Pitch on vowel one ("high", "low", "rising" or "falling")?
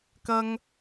high